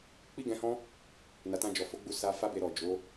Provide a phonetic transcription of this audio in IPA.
k͡pi˦ɡɛ̃˧hɔ̃˦ | na˨tã˧ d͡ʒɔ˨fo˨˦ɡ͡bu˦˨ sa˧ fa˦be˧ɾɔ˨ d͡ʒo˨˦

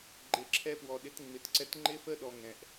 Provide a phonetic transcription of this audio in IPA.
ɡ͡ǃe˨ǁʰɛ˧pwɔ˨ɗɪ˨˦t ŋ͡mɪ˨tǀɛ˧t ŋ͡ǃɪ˦fə˦ ɗɔ˧ ŋɛ̃˨ʔ

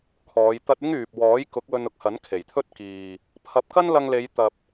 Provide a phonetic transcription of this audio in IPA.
kʰɔː˨˧j t̪ɐ˧t̚ɪ˥ŋ yː˨p̚wɔː˨˥j kʊ˨˥k̚wɵ˧nʊ˨k̚hɐ˨˥n kʰe˨˩jt̪ʰɵ˥t̚kiː˨ | pʰɐ˨p̚kɐ˥nlɐ˧ŋ le˨˧jt̪ɐ˨p̚

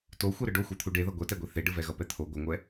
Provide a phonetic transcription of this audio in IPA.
toxʷɛ ɾɯɖoxʷɛt̪ʰu ɖeðʌ ɡʷɛtɛɡʷe θeɖɯvɛɣʌ pɛt̪ʰo ɡʷʌŋʷɛ

